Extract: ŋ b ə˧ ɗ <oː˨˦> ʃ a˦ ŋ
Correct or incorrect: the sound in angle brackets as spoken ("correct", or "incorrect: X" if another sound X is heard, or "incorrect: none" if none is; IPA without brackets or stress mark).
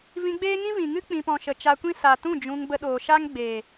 incorrect: oː˨